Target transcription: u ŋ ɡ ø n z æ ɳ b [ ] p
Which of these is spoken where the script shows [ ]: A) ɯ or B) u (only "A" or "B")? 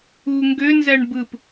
A